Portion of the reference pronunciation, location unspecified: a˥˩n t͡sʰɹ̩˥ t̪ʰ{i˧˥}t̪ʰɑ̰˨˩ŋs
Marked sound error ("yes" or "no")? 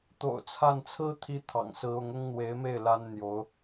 yes